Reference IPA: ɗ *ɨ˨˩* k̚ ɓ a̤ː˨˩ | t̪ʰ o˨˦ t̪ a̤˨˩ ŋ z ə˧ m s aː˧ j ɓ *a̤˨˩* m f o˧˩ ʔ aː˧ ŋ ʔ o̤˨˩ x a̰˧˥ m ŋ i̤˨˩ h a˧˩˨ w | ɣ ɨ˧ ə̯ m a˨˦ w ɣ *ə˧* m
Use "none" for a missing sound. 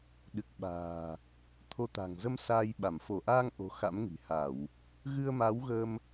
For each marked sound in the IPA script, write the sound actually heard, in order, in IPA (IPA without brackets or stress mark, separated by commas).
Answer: ɨ˨˩, a˧˩, ə˧